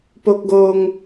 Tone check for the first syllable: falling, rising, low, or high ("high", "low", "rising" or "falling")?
high